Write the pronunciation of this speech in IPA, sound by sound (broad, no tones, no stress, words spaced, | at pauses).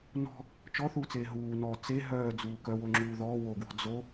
nɔ̤ | t͡ʃɔθuːt͡seː ɦuː nɔ t͡se ɦœːd͡zuː kœwoŋ͡ǁuː ðɔː woɡwɔ̤ d͡zo